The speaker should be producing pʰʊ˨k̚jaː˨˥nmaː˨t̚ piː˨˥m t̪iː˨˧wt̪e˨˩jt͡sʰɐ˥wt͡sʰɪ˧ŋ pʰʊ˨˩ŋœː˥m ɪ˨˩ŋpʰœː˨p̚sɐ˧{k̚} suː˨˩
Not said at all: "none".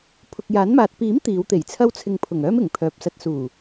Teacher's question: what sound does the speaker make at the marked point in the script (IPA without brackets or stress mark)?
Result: t̚